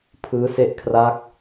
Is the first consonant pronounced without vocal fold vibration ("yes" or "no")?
yes